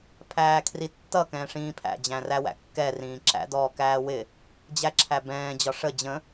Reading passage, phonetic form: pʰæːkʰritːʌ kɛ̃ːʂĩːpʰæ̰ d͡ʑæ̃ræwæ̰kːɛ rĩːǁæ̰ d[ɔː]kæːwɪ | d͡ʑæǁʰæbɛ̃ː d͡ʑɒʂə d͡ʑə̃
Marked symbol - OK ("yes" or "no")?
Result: yes